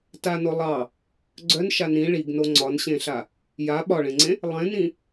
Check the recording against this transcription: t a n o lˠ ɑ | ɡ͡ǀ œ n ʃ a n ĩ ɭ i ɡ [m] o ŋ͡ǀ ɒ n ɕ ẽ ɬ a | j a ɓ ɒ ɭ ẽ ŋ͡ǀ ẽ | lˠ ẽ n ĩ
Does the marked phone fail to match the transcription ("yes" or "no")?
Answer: yes